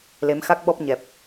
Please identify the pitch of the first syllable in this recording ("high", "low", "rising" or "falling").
rising